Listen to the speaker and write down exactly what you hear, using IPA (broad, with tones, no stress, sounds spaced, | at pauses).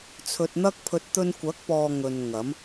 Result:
t͡sʰ ɵ˧ t̚ n̪ ɐ˥ k̚ pʰ ɵ˧ t̚ t̪ ɵ˧ n kʷ ɐ˨˥ k̚ p ɔː˨ ŋ ɵ˨ n ŋ ɐ˨˥ m